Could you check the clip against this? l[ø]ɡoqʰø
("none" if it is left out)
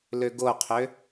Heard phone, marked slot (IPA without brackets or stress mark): ø